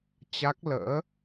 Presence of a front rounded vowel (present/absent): absent